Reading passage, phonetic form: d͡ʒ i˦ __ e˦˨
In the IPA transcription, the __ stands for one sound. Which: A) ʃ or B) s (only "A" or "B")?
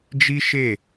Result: A